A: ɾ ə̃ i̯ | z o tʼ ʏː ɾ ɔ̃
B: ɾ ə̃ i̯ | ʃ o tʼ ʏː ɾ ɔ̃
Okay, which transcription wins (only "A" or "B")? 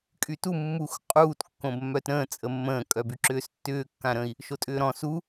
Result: B